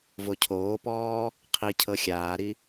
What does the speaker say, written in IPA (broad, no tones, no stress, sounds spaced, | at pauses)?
v o cʰ oː p ɔː | qʰ i cʰ ɤ xʲ aː ɾ i